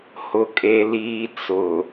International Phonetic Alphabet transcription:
h ʊ˦ kʼ e˦ l iː˦ t͡s ʊ˨

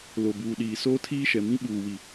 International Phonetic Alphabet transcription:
l o˨ b uː˨ ɗ iː˨ s oː˦ tʰ iː˦ ʃ ɛ˨ m ĩ˦ ɓ uː˨ w i˨

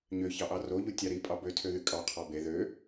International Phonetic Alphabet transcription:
ɲ ø ç ɑ ʔ ɑ r o ʎ u tʲ ɑ ɾ i pʼ ɑ b ø tʰ ø ð y kʼ ɑ qʰ ɑ b e ð ø

